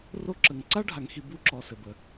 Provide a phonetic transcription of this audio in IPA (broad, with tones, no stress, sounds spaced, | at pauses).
r o˦ ǁ ə˨ ŋ ǀ a˦ ɖʱ a˨ ŋ x i˨ b u˦˨ ǁ ɔ˨ s ɘ˨ b ə˨